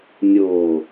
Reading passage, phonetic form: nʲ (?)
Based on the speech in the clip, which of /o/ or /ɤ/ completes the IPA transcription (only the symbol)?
o